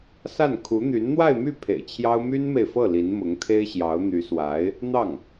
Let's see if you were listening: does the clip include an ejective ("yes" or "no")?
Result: no